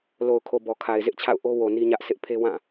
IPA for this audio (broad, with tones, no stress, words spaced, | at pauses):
lo˨ʊ̯kʰo˨ bɔ˨kʰa˨ɪ̯zɪ˦ʔt͡ɕʰa̰˦˨ʊ̯ ʔo˦wo˨ ni˦ɲä˦ʔ sɪ˦ʔpʰe˦ wã˦˨